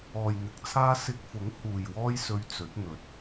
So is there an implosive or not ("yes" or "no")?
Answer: no